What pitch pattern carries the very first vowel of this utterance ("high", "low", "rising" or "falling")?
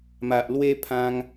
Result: low